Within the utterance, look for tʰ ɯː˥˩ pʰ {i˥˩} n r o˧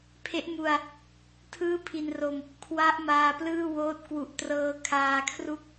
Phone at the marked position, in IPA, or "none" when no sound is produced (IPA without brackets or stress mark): i˧